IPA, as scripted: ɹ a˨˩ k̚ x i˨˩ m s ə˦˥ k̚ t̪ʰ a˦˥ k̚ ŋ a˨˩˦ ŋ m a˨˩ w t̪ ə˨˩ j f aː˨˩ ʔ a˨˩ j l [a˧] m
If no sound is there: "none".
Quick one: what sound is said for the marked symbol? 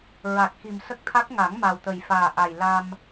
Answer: a˧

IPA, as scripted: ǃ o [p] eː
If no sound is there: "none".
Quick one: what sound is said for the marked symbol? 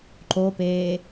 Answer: p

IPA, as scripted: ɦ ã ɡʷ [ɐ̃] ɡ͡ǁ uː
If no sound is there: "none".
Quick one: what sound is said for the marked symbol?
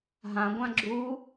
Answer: ã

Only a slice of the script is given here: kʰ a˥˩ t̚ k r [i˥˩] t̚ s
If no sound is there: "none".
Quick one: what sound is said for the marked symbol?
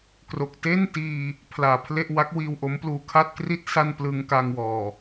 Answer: i˥˩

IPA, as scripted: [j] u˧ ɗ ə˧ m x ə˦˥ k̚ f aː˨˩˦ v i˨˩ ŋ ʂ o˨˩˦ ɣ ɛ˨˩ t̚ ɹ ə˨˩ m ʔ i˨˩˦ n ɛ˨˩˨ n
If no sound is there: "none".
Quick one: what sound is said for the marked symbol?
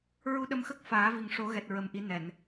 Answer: ɹ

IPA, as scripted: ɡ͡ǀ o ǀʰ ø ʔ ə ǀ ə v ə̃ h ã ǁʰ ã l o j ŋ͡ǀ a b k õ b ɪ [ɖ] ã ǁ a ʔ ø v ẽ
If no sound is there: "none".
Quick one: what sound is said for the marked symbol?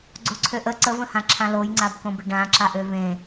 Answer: ɖ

